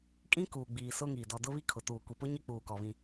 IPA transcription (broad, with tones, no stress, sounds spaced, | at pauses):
kʼ ĩ˦ k uː˨ ɡ͡b iː˨ s ʊ˦ ŋ iː˨ d ɔ˨ d ʊ˦ β i˦ kʰ ʊ˨ t uː˨ kʷ i˨ p ʊ˦ ɲ e˦ k͡p uː˨ k ɔ˨ β ĩ˦